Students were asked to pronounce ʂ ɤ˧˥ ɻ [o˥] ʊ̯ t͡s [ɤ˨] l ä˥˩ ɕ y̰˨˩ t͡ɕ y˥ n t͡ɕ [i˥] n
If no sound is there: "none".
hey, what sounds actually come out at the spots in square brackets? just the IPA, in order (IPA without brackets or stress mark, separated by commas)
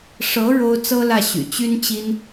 o˥, ɤ˥, i˥